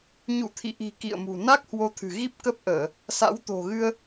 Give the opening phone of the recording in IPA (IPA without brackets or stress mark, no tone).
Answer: ɲ